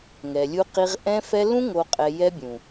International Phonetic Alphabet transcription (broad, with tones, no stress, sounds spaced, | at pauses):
ŋ ɛ˨ lʲ u˦ q i˦ ʁ ʔ ɛ̃˦ f ɛ˦ l ũ˦ ŋ o˨ qʼ ɛ˨ j ɛ˦ bʲ ũ˨